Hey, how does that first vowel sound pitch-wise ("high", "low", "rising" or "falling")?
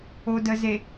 low